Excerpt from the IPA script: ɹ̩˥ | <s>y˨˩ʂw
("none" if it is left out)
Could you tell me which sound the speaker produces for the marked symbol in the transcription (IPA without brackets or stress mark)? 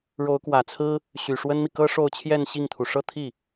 ɕ